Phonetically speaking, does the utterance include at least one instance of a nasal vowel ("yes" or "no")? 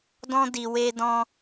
yes